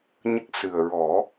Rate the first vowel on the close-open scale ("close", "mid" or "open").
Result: mid